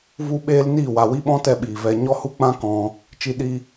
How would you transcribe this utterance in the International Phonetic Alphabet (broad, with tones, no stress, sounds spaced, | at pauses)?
v u˦ ɓ eː˦ l n iː˦˨ w a˨ w i˦ ɓ ɔ̃˦ t ɛ˧ ɓ iː˨ v ɛ˧ ɲ ɔ˦ h u˦ k͡p ã˦ k ɔ̃˧ | t͡ʃ i˧ ɗ i˧